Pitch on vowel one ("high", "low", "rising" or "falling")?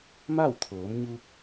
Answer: falling